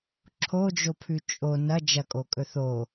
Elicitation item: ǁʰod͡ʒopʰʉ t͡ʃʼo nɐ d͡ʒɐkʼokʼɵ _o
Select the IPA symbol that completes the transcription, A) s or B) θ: B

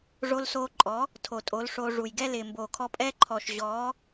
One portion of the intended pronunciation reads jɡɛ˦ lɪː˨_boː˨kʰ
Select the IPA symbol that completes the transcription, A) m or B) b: A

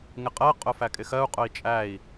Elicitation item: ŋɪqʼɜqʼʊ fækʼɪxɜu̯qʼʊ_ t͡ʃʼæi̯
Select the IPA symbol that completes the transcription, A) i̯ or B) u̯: A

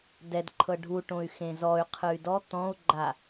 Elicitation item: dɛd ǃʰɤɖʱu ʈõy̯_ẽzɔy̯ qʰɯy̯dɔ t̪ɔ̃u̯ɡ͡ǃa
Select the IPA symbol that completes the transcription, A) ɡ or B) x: B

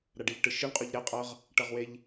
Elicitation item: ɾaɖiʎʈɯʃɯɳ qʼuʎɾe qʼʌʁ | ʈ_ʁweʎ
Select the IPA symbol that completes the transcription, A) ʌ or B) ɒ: A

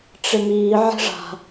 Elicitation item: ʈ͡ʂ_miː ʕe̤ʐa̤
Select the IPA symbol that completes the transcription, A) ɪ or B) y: A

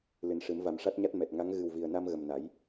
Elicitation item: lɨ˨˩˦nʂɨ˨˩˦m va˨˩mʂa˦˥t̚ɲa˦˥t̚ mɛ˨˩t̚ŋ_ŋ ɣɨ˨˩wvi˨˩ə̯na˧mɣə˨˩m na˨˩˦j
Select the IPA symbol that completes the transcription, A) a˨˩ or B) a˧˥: B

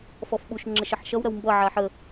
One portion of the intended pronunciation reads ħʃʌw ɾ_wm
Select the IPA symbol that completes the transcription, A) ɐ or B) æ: A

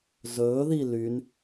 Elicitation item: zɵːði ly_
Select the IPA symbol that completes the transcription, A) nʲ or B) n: B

